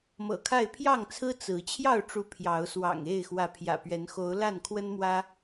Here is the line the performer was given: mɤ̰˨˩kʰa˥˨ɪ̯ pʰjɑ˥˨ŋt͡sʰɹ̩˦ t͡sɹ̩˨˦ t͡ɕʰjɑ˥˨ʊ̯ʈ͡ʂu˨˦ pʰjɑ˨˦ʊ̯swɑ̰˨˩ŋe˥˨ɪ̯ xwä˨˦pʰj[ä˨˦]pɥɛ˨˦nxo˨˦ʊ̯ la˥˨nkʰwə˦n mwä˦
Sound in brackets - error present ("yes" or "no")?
yes